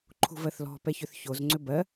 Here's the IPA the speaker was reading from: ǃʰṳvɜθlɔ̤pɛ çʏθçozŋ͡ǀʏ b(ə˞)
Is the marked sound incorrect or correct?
incorrect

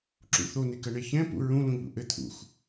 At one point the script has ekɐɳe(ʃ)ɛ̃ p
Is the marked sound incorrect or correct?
incorrect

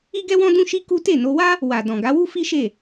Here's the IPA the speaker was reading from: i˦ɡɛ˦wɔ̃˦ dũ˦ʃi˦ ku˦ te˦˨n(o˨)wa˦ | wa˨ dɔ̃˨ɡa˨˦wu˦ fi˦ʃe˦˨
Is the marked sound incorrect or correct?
incorrect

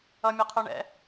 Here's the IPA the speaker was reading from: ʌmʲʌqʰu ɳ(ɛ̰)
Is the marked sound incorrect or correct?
correct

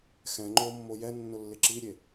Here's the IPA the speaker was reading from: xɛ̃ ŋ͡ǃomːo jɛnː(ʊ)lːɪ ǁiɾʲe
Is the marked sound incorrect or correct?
correct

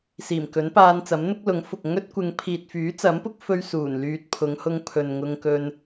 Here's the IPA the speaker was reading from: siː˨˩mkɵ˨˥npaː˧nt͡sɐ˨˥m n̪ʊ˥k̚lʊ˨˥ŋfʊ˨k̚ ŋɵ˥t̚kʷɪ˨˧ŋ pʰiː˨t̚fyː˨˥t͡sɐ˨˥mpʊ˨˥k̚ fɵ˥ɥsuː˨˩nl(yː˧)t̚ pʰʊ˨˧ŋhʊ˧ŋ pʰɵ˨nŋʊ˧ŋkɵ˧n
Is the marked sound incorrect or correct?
correct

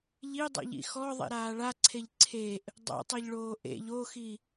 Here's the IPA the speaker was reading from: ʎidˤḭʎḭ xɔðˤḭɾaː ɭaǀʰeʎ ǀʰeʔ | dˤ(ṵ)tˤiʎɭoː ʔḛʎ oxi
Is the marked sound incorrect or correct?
incorrect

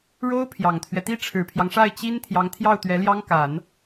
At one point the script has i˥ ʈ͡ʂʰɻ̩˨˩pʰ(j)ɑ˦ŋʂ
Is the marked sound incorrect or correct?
correct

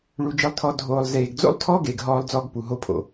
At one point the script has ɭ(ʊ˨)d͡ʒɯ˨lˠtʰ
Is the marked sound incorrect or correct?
incorrect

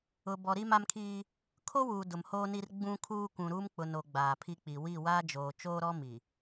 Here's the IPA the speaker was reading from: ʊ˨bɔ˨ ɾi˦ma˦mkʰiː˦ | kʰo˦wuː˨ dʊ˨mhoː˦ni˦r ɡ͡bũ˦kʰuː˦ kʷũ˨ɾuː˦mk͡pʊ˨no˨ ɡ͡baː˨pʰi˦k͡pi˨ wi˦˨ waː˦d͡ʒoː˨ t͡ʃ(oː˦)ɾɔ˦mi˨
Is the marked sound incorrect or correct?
correct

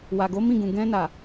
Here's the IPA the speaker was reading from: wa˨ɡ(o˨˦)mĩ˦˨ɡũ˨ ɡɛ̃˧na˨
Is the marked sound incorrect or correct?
correct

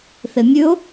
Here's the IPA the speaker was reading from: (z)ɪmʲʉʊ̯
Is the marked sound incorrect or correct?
incorrect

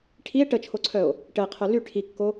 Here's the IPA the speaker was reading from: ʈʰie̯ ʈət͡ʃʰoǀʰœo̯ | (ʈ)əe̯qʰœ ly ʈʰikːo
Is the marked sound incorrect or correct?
correct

